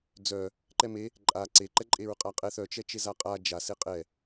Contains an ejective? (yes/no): yes